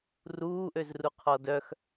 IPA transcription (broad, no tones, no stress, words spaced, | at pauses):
ruːʔøzru qʰɔdœx